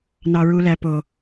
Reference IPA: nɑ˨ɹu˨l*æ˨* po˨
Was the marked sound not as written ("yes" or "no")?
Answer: no